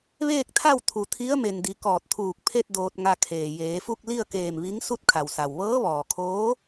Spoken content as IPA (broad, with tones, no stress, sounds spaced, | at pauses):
ʋ eː˥˨ k̚ t̪ʰ a˥˨ w t̪ʰ u˩˧ t̪ʰ i˧˥ ə̯ m e˩ n d i˩˧ k ɔː˧˩ t̚ t̪ʰ uː˧˩ k̚ pʰ e˥˨ t̚ d oː˧ t̚ ŋ a˧ kʰ eː˩ j eː˩˧ f u˥˨ k̚ l i˥˨ ə̯ k eː˧˩ m ʋ i˧˥ ŋ s u˥˨ t̚ kʰ a˩ w s a˩ w ʋ ɤː˧˥ ʋ ɔː˩ kʰ oː˧˥